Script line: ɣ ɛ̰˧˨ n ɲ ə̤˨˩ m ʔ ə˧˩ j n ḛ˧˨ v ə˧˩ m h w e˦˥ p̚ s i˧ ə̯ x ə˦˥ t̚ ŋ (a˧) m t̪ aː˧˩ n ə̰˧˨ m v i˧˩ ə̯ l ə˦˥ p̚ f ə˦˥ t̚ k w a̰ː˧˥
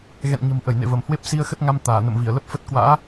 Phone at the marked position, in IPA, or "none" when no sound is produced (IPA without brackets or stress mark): a˧